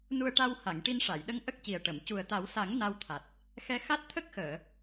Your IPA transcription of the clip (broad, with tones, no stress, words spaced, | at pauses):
nu˧ə̯ʈa˧wha˨˩˨ŋ ʈi˧nʂa˨˩˨jɗə˧˥ŋ ʔə˦˥k̚ci˨˩ə̯ʈə˨˩˨m cu˨˩ə̯t̪a˨˩˦wsa˨˩˦ŋ na˧wt̪ʰa˨˩t̚ | xɛ˧xa˦˥t̚ t̪ʰə˦˥k̚xəː˨˩˨